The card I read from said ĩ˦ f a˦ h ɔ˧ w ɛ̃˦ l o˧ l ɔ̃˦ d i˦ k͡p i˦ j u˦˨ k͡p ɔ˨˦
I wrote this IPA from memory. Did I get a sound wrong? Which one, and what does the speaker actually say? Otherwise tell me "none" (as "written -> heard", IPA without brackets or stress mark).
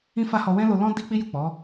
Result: none